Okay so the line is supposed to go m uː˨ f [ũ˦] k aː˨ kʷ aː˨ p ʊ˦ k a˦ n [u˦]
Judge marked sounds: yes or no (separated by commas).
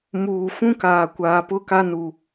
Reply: yes, no